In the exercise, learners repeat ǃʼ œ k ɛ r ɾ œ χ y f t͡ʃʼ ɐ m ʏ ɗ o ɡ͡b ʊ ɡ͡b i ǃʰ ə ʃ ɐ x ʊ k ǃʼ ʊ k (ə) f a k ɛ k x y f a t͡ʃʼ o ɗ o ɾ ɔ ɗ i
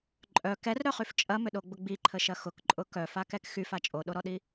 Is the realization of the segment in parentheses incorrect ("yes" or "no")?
yes